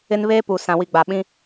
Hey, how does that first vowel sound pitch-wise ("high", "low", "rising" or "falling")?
high